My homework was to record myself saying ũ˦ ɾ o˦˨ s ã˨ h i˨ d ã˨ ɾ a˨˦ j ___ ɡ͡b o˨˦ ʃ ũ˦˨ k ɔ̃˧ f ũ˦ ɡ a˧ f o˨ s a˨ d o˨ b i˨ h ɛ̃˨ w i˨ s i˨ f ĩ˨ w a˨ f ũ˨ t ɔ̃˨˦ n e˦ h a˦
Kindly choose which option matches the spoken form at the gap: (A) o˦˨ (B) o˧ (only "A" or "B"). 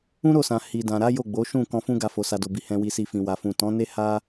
A